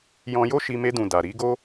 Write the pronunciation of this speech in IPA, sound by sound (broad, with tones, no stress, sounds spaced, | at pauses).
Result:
j ɔ̃˧ j o˦ ʃ i˧ m e˧ d ũ˨ d a˨ ɾ i˨˦ ɡ o˦